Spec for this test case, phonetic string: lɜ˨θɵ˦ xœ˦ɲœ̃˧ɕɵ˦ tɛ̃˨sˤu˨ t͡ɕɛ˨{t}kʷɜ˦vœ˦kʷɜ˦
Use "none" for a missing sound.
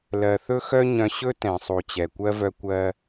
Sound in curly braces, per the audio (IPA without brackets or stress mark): none